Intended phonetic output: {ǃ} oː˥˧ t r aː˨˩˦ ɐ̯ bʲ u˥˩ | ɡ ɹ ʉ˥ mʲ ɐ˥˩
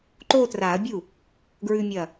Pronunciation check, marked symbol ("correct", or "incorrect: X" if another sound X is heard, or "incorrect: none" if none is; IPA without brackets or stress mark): correct